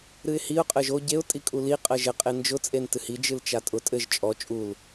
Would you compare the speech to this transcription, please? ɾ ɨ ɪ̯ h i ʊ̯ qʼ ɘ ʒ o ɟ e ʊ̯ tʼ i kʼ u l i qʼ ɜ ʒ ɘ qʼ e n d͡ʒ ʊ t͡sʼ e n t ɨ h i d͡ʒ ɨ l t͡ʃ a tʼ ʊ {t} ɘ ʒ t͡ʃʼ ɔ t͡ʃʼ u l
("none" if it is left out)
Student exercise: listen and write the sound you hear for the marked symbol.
tʼ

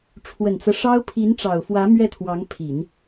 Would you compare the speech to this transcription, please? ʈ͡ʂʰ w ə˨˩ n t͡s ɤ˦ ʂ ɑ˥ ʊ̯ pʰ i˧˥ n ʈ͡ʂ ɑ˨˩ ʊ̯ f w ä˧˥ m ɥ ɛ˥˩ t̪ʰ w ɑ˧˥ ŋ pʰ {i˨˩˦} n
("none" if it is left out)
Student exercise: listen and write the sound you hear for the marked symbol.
i˨˩˦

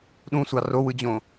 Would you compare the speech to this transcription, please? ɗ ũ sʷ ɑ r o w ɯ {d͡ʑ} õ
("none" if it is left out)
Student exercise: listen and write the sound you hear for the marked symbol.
d͡ʑ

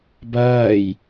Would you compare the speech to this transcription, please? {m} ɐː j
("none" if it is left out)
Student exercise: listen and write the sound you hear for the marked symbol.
b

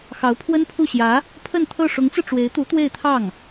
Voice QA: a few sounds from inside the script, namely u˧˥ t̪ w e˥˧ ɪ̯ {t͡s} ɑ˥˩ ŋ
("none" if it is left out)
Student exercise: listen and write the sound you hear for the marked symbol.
t̪ʰ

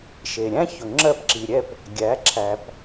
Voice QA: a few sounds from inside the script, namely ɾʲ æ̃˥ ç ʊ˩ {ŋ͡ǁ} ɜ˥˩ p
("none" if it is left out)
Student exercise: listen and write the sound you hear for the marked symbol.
ŋ͡ǁ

